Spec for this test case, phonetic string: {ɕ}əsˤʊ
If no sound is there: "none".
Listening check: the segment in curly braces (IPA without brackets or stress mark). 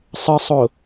sˤ